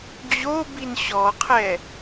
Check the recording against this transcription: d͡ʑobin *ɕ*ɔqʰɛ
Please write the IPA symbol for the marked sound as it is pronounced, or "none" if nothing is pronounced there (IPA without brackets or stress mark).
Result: ɕ